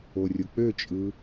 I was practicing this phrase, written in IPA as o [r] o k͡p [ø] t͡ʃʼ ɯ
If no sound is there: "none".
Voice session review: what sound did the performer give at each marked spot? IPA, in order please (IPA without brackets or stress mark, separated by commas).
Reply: rʲ, ø